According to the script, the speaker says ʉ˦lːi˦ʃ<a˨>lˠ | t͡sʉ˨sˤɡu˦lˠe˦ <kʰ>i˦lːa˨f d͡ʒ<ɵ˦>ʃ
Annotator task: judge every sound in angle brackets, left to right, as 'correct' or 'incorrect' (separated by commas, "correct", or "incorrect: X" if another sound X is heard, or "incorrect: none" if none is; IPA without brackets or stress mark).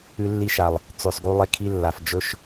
correct, correct, correct